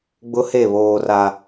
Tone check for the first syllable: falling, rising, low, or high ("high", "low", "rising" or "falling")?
high